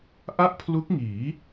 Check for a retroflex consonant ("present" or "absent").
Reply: absent